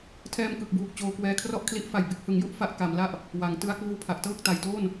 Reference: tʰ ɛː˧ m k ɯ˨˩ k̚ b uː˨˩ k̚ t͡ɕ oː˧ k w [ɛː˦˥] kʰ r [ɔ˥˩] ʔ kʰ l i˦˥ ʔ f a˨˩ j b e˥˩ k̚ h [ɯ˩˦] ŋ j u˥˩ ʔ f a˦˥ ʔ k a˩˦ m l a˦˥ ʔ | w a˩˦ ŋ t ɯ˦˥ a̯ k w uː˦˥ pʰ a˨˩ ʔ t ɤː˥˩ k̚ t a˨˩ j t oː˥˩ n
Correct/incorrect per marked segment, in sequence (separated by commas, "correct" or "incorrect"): incorrect, correct, correct